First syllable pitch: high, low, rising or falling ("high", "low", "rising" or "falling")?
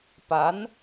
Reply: rising